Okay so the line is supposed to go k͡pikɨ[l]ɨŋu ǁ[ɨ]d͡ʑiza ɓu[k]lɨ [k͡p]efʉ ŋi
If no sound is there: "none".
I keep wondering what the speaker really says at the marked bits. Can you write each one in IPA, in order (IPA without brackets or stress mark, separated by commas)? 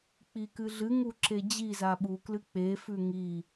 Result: ɮ, e, k, k͡p